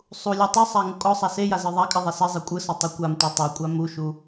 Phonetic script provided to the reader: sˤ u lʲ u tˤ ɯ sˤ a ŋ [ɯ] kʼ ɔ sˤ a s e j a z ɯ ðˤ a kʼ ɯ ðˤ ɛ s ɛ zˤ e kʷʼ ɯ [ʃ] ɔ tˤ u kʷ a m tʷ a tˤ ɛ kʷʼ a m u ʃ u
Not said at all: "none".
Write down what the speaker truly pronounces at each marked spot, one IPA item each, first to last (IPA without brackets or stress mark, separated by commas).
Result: u, s